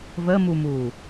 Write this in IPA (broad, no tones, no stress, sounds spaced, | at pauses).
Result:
v ə m u m uː